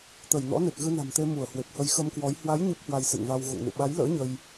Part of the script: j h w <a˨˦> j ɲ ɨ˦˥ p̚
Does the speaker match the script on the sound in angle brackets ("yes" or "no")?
yes